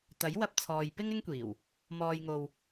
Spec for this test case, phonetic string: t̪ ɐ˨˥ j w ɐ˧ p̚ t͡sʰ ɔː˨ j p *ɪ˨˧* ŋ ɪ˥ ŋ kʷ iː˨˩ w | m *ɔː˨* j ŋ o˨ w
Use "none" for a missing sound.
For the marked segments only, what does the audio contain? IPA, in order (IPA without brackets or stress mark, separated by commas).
ɪ˥, ɔː˨